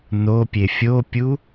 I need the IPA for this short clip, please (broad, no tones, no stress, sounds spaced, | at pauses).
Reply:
n o pʲ e fʲ o pʲ u